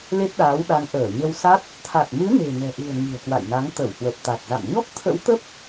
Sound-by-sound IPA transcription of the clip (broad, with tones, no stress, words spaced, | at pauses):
le˦˥t̚ɗaː˨˦wɗa˨˦ŋ ʔəː˧˩ɲə˧w sa˦˥t̚ | t̪ʰa˨˩t̚mɨ˨˦ ne̤˨˩nɛ̤˨˩ʔɨ̤˨˩ə̯ ŋi̤˨˩ə̯kwa̰˧˨jna˨˦ŋ t̪ə˧˩whwə˨˩p̚t̪a˨˩t̚za̰˧˨m ɲɔ˦˥k̚t̪ʰə̰˧˥w t̪ə˦˥p̚